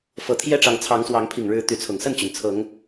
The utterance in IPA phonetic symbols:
f ɤ˨˩ t̪ʰ j ɛ˥˨ ʈ͡ʂ ɑ˨˦ ŋ t͡sʰ ɑ˨˦ ŋ s w ɑ˨˦ ŋ pʰ i˨˩ ŋ ɻ ɻ̩˨˦ t̪ y˨˦ t͡sʰ ʊ˨˩ ŋ s ə˥˨ n t͡ɕ y˩ n t͡sʰ ɤ˨˦ ŋ

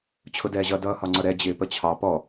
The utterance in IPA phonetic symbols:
t͡ɕʰ ʊ d ɛː ʑ ʌ d ʌː h ɒ ŋ͡ǀ ʌ ɾ ɛ d͡ʑ ɪː p ə t͡ɕʰ ɑ p ɔ

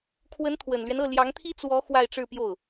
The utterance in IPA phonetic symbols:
kʰ w ə˧˥ n t̪ʰ w ə˨˩ n l ɥ ɛ˦ n ɤ˥˩ l j ɑ˧˥ ŋ t̪ʰ i˥ t͡s w ɔ˧˥ x w a˥˧ ɪ̯ ʈ͡ʂ ɻ̩˥˧ p j o˥˩ ʊ̯

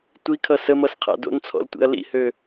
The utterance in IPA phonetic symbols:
tʷ i kʰ ʌ s ə m ʌ s qʰ a̰ d o̰ n t͡sʰ ɔ̰ l tʷ ḭ ɐ̯ l ḭ h ø

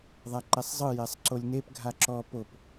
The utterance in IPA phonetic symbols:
ðˤ a ǃ ɛ sˤ zˤ ɯ j ɛ sˤ ǀ o lʲ n e p ɡʱ a ǁ ɔ p o p

